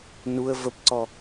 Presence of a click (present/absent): present